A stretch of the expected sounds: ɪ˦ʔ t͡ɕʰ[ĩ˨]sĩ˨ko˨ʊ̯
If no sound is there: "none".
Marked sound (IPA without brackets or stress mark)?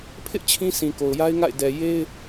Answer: ĩ˦